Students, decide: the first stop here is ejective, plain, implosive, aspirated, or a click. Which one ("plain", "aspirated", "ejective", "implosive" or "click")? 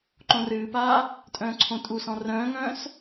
click